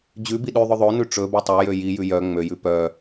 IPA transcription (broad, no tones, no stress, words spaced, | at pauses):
d͡ʑʉbi ɗʉðˤɵ ðˤonʉ ʈ͡ʂɵ bɛtˤœjø jijʉ jœ ŋ͡møjʉ pœ